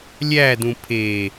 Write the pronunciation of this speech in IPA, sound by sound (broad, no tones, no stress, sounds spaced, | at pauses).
lʲ æ d ũ pʰ e